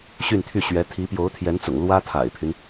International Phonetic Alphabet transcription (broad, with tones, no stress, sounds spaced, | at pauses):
ɕ y˥˧ n t̪ʰ y˥˩ ɕ ɥ ɛ˧˥ t̪ʰ i˧˥ p j o˧˥ ʊ̯ t̪ʰ j ɛ˧˥ n t͡s ʊ̰˨˩ ŋ l w ä˥ t̪ʰ a̰˨˩ ɪ̯ pʰ y˦ n